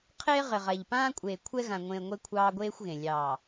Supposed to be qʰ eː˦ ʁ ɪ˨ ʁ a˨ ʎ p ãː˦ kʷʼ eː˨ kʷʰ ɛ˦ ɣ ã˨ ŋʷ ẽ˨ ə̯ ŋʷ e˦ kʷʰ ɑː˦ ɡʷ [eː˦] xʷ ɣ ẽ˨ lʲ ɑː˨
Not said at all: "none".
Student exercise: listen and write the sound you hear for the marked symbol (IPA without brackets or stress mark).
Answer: eː˦